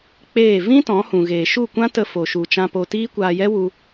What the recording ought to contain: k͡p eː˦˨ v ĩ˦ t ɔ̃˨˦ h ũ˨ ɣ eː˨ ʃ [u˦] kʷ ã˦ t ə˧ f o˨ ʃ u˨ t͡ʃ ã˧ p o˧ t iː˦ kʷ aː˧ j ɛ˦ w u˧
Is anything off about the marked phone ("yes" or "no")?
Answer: yes